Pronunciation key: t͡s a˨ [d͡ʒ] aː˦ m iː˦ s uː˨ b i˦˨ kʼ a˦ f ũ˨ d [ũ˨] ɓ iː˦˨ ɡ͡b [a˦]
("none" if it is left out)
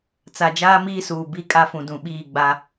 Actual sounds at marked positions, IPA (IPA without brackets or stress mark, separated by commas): d͡ʒ, ũ˨, a˦